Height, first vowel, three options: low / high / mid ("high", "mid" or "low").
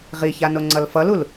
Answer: high